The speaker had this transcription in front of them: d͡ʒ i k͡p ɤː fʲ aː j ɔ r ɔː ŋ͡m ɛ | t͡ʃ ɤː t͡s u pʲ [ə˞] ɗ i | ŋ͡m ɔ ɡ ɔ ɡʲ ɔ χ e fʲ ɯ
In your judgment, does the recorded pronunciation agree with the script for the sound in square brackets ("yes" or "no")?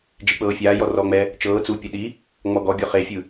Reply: no